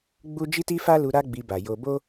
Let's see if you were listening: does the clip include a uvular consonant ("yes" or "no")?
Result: no